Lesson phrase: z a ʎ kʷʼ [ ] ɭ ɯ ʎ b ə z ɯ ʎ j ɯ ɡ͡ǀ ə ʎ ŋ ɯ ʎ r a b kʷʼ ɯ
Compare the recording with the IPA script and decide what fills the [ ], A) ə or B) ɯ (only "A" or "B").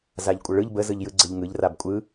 A